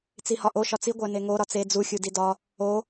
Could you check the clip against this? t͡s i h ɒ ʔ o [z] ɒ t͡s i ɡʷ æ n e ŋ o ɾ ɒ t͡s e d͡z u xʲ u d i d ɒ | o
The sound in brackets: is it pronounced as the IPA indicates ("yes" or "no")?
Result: no